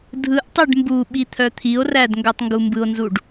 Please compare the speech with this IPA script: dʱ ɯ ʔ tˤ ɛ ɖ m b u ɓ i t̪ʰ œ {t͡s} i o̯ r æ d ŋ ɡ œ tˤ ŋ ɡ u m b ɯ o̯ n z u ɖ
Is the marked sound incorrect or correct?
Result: incorrect